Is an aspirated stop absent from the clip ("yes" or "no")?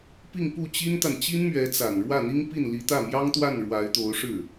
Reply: yes